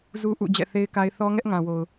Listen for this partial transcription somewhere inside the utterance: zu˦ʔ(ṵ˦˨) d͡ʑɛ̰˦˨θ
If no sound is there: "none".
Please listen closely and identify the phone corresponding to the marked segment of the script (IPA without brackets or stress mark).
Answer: ṵ˦˨